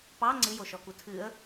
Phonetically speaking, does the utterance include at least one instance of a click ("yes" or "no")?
yes